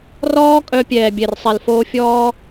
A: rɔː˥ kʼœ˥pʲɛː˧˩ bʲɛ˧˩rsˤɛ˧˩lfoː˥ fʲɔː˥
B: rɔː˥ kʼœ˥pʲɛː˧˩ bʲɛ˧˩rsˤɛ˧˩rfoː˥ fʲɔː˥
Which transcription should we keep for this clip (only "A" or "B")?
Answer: A